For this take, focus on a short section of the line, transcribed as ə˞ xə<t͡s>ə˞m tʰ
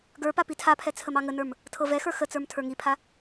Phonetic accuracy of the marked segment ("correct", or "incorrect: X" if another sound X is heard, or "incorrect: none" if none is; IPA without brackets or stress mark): correct